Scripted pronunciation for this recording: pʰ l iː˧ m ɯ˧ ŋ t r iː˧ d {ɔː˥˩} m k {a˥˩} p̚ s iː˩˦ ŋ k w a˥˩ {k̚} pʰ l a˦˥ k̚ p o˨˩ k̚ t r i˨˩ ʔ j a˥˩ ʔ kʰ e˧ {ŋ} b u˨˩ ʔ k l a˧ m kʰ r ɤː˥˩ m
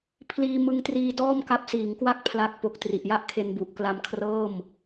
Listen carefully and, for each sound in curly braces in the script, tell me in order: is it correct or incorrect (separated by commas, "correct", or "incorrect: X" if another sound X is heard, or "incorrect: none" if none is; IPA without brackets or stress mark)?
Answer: correct, incorrect: a˦˥, correct, incorrect: n